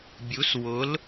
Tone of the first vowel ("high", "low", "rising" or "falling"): rising